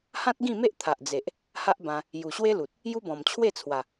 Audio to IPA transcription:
hã˦t̚ɡĩ˥˧me˦ʔ t̪ʰa˨ʔd͡ze˨ʔ | ha˦ʔbã˧ | ju˨˩ɕwe˦lu˨t̚ | ju˦bɔ̃˨˩mt͡ɕʰwe˥˧t͡sʰwa˨˩

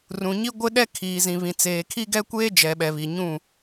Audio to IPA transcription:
rũ˨ɲi˦ɡʷɪ˦ɗɛ˦ kʰiː˨zĩ˨ βĩ˨t͡seː˨ kʰi˦ɡɛ˦kʷeː˦ d͡ʒɛ˨ɓɛ˨βi˨ ɲũ˦˨

